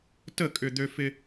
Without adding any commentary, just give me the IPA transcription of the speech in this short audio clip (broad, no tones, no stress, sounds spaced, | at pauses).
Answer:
t ə kʼ ʏ d̪ ø f ɪ